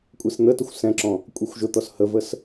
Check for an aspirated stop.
absent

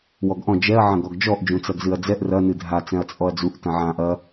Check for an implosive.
absent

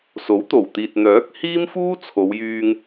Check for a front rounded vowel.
present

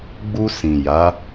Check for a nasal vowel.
present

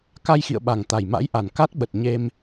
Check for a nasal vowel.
absent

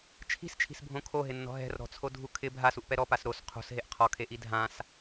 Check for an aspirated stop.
present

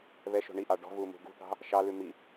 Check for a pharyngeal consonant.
absent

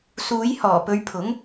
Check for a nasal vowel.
absent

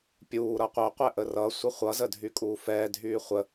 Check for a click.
absent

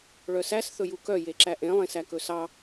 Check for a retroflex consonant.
present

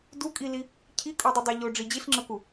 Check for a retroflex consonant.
present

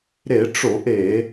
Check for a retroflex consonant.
present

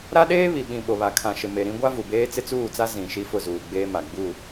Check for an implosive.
present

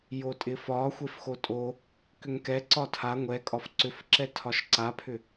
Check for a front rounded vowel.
present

